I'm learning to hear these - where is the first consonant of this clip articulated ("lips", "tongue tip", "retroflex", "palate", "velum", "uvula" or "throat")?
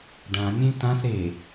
retroflex